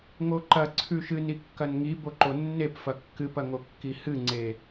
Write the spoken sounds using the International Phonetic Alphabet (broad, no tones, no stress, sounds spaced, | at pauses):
ŋ o ǃ ɐ ǀʰ ʉ ʃ ɨ n i kː ɐ n ŋ i b o ǃ o nː e p f ɐ kː ɨ p ɐ ŋ o kː i h ɨ ŋ͡ǀ e